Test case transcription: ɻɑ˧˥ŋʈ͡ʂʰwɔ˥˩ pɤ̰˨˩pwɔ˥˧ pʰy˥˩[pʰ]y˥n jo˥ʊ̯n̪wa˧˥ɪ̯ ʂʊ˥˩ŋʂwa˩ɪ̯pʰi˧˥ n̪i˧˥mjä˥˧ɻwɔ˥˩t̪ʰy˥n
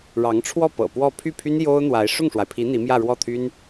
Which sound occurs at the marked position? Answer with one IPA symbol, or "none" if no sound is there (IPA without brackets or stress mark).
pʰ